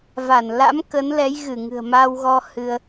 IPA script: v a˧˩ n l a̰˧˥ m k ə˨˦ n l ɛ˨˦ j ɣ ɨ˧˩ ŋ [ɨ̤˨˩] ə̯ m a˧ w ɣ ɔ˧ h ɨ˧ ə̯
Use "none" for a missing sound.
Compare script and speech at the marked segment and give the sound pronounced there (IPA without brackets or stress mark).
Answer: ɨ̤˨˩